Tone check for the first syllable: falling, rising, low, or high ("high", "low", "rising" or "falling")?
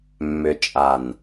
low